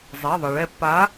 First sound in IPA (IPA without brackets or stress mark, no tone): zˤ